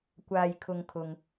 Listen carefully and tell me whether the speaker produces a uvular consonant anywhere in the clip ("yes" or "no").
no